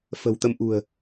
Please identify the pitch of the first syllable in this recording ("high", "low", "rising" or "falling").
low